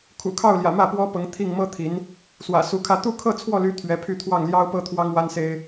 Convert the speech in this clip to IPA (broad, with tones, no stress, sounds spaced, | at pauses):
kʰ ṵ˨˩ kʰ ɑ˥˩ ʊ̯ l j ä̰˨˩ m ä˥˩ p w ɔ˥ p ɤ˧˥ ŋ t̪ʰ i˥˩ ŋ m ɤ˥ t̪ʰ i˧˥ n | s w ä̰˨˩ s u˧˥ kʰ ä˥˧ t̪ u˥˧ kʰ ɤ˥˧ t͡sʰ w ɔ˥˩ l y˧˥ t̪ʰ ɥ ɛ˧˥ pʰ y˥˧ t̪ʰ w ɑ˥˩ ŋ l j ɑ˥ ʊ̯ p ɤ˥ t̪ʰ w ɑ˥ ŋ w a˥ n s e˥ ɪ̯